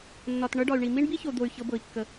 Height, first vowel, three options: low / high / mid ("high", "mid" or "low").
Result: low